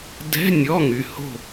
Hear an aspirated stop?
no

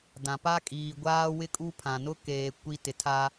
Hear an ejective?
yes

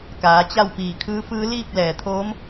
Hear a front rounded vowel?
no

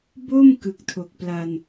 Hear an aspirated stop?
yes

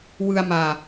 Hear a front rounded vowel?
no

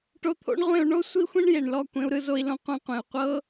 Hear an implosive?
no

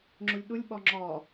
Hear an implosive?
yes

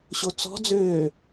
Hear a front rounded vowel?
yes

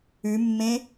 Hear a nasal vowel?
yes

